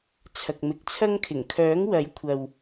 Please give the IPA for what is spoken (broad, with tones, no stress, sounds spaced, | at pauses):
t͡sʰ ɐ˨ k̚ m ɪ˨˥ k̚ t͡sʰ ɐ˥ ŋ kʰ ɪ˨˩ ŋ kʰ œː˨˥ ŋ w ɐ˨˥ j kʷʰ ɐ˨ w